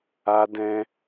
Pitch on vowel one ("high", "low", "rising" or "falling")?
high